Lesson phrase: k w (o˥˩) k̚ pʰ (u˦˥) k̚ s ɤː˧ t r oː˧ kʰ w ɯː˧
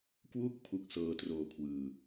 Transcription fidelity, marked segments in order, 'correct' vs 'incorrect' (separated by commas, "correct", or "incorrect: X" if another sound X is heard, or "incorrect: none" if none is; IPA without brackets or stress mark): incorrect: u˥˩, correct